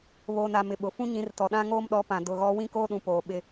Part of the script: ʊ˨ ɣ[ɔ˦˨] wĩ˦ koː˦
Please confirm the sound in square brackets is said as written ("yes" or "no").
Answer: no